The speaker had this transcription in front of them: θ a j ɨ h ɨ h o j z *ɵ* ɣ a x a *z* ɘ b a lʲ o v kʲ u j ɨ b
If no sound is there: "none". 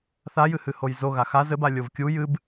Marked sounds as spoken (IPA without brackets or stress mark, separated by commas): o, z